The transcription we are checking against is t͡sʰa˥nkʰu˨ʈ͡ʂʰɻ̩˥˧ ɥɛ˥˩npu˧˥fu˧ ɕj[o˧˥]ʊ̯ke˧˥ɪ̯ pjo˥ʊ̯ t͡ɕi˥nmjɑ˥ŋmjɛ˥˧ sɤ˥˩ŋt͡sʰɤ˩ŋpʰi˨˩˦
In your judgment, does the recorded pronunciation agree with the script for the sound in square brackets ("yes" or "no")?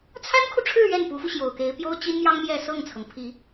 no